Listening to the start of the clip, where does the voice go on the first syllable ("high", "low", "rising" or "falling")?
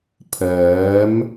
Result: rising